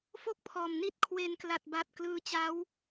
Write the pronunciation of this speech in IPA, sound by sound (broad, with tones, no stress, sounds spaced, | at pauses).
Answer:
f o˥˩ k̚ pʰ ɔː˨˩ m n i˥˩ t̚ kʰ w e˧ n k l a˨˩ t̚ b a˨˩ t̚ k l ɯː˦˥ t͡ɕ a˦˥ w